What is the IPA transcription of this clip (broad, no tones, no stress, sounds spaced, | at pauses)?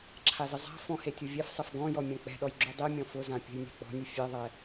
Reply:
ǁʰ a z ɪ zˤ a̤ f ɔ̃ h e tʲ o vʲ ɛ f sˤ ɛ f ɡ ɔ̃ j ɔ mʲ ã k͡p ɛ̤ ɗ ɔ j ɡ͡ǁ u dˤ i mʲ ɔ̃ f ʊ z ã pʲ ɛ̤ j nʲ a̤ k͡p ɔ̤ nʲ e fʲ e ðˤ ɛ